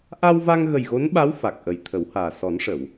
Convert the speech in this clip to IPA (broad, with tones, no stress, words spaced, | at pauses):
ʔa˧wva˧ŋɣə˨˩j ɣo˧˥nɓa˧˥w fa˨˩k̚ʔə˨˩jt̪ʰə˨˩˦whaː˨˩ sɔ˨˩˦nʂə˨˩˨w